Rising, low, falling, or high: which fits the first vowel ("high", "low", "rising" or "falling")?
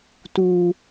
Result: high